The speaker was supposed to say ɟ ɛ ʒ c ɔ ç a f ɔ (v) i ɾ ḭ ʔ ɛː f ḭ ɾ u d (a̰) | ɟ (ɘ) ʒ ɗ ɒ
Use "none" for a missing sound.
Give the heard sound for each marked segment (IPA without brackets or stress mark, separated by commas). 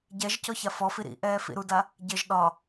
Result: f, a, ɘ